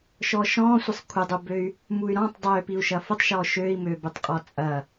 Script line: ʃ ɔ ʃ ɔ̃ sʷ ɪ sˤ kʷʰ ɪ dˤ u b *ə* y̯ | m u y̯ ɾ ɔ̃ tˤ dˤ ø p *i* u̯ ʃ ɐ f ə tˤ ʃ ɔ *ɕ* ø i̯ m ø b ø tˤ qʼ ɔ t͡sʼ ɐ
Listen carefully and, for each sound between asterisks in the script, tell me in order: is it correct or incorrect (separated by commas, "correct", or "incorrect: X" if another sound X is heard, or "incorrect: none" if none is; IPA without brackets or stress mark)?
incorrect: ø, correct, incorrect: ʃ